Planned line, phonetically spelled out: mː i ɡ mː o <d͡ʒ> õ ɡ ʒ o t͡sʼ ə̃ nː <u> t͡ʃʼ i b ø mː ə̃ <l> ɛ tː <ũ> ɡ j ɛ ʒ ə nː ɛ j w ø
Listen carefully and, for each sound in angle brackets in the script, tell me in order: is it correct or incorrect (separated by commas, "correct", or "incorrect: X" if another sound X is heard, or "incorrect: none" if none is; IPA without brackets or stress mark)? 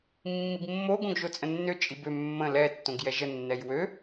incorrect: ɡ, incorrect: ø, correct, incorrect: õ